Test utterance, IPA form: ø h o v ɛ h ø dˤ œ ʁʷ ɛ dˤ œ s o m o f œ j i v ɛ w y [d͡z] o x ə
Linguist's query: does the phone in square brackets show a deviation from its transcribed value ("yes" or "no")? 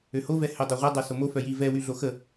yes